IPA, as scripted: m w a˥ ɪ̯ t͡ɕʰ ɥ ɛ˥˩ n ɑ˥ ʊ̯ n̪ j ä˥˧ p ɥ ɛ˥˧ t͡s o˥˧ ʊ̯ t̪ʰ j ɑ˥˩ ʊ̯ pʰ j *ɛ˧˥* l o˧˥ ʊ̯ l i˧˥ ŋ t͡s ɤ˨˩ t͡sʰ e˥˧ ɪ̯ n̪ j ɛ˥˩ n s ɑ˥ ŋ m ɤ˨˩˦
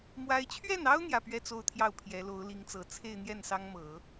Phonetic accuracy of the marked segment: correct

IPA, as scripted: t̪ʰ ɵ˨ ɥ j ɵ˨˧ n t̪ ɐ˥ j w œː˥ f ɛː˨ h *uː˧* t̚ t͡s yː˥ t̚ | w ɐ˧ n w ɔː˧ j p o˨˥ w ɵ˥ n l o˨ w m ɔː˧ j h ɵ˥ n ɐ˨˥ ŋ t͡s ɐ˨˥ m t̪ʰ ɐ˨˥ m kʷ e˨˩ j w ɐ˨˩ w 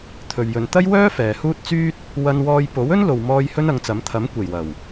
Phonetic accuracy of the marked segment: incorrect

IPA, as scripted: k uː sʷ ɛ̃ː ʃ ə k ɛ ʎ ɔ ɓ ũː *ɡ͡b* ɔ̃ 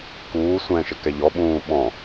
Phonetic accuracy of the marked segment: incorrect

